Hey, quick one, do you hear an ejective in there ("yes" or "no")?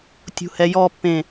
no